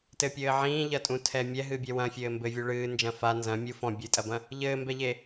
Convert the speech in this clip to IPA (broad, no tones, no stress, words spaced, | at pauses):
tɘpʲɘː ʕĩːʎɐtʼũtʰɛ mʲɛɦɨbʲɛ wɐ̃fʲɘː mbɘvʲu ɭɨːnd͡ʒɐ̃ fa nzɐ̃ mʲu fɔ̃ bʲɨtʼɐbɐ̃ | ʎɘːmbɛʎe